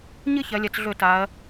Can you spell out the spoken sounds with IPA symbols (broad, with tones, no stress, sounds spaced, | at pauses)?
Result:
ɲ ɨ˥ ç ɐ˩˧ lʲ ɐ˩˧ t͡s ɮ ɵ˧˩˧ t a˩˧ ɐ̯